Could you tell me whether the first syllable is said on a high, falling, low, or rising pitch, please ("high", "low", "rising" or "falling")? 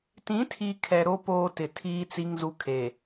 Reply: rising